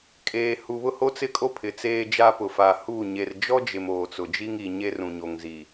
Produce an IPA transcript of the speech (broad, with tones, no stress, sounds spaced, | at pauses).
kʼ eː˨ h u˨ β ʊ˦˨ h o˦ t͡s ɪ˦ kʼ o˦ pʰ ɪ˨ t͡s eː˦ d͡ʒ a˦ p ʊ˨ f a˨ h u˦˨ ɲ e˨ r d͡ʒ ɔ˦ d͡ʒ ɪ˨ m oː˨ t͡s ʊ˨ d͡ʒ i˦ ŋ i˨ ɲ e˦ r ũ˨ ɲ o˨ ŋ z i˨